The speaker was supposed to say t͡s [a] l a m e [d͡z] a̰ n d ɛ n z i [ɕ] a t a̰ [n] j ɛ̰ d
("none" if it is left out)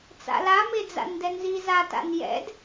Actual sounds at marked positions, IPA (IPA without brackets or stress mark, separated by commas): a̰, d͡z, z, n